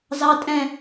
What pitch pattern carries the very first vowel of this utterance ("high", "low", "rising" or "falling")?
high